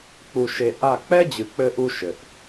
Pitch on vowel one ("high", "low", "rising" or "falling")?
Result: low